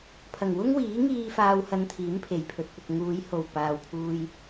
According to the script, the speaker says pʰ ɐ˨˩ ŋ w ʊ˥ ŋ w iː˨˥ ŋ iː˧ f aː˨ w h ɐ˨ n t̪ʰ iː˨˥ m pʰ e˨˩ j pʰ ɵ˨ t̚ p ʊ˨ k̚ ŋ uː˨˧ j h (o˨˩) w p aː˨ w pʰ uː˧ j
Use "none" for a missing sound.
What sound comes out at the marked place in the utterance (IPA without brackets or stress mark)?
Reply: o˨˩